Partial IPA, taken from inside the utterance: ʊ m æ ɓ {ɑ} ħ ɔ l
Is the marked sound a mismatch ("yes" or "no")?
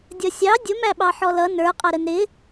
no